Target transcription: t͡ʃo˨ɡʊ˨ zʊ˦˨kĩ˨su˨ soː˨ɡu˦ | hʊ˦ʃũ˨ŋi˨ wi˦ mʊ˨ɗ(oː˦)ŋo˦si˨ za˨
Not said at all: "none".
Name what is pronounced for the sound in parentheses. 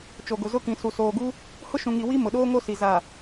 oː˦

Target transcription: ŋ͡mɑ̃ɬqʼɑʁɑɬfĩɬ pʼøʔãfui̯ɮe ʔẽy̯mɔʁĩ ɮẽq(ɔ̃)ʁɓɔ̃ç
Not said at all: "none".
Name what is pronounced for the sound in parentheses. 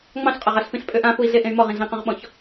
ɔ̃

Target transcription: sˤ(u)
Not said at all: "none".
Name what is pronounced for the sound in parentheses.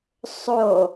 o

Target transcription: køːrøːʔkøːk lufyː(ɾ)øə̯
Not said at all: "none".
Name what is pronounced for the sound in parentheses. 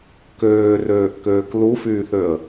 θ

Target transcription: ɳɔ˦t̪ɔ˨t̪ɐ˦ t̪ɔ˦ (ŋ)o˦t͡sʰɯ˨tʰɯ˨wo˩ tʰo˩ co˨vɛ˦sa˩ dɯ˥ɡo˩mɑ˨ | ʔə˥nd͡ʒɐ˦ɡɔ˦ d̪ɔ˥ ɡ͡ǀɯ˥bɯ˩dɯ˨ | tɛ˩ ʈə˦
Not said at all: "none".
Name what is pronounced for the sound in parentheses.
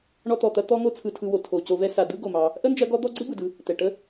ŋ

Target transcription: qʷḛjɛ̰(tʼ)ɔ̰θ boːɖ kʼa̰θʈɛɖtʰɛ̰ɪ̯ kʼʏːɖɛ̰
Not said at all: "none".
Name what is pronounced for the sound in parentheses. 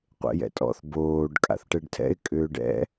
tʼ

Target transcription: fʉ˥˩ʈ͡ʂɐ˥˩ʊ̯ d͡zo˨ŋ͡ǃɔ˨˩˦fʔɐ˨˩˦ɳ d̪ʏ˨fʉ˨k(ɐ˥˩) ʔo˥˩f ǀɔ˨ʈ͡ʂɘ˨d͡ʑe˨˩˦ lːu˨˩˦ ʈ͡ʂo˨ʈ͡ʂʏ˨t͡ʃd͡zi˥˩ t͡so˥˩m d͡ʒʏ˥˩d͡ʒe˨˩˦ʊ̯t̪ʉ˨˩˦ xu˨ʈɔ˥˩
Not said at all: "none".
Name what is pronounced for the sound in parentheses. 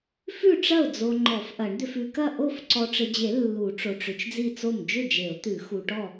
ɐ˥˩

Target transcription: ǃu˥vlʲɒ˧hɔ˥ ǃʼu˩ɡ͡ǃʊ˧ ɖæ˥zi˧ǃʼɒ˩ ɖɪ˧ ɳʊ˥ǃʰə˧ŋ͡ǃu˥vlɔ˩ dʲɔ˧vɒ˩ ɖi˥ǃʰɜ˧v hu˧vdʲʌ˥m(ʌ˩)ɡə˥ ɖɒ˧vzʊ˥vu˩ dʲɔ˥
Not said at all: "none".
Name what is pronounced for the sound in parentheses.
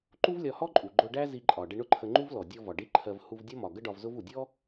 ɒ˩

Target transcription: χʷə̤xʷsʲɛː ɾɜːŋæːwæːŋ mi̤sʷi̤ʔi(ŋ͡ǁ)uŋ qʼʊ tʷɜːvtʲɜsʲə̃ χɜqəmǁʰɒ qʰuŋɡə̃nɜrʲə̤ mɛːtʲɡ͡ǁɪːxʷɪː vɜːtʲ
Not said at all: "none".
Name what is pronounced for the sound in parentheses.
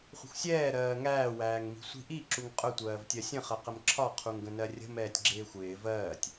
ǁ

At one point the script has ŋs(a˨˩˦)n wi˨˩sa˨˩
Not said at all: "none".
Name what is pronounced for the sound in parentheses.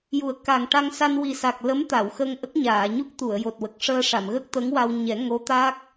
a˧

